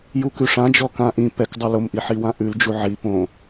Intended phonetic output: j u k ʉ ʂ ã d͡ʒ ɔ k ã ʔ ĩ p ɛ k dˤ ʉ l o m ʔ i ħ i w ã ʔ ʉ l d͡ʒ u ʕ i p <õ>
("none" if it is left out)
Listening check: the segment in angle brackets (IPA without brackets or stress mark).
õ